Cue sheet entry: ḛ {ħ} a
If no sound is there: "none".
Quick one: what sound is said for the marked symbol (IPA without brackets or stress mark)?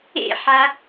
ħ